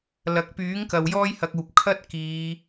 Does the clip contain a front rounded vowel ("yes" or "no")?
yes